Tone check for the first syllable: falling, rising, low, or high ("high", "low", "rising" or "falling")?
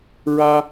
high